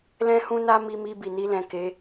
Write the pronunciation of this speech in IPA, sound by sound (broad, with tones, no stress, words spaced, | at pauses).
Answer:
lɛ̃˦hũ˦na˦ mi˧mi˧ bi˨ni˧lɛ̃˨ ke˨˦